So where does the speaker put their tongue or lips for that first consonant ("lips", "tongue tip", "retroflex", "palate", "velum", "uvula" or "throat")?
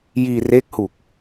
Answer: palate